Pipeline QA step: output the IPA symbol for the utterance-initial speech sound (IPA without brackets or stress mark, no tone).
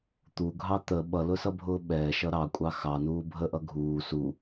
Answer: t̪